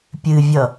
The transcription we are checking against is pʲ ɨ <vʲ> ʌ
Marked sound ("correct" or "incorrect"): correct